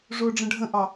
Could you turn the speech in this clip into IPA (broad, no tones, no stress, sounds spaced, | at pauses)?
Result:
ʐ ʊː ɖ͡ʐ ə̃ ɖʱ ə̃ ʔ ɑ